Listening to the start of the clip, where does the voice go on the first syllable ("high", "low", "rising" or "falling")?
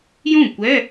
falling